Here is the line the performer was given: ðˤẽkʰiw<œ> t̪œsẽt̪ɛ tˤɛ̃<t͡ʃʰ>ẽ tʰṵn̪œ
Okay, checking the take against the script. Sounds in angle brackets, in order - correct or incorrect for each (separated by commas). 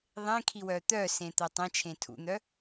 correct, correct